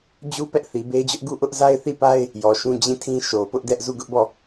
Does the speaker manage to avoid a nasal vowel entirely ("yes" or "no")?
no